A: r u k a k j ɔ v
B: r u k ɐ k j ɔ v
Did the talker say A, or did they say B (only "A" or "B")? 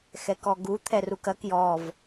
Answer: B